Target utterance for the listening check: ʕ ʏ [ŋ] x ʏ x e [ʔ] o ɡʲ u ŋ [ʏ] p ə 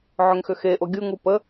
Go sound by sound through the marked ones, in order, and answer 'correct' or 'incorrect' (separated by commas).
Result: correct, correct, incorrect